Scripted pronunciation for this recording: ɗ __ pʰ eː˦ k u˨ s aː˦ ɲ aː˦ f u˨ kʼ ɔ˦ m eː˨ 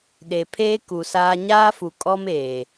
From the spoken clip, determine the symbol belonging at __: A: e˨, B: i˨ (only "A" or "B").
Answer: A